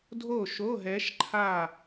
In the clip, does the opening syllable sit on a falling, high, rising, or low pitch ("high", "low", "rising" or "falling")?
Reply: falling